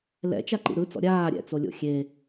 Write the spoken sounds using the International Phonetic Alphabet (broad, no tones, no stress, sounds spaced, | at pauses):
l ɛ̰ t͡ʃ a ǃ ḭ ɾ ɯ t͡s ɔ̰ ɾʲ aː ɾʲ ɛ̰ t͡s o lʲ o̰ xʲ e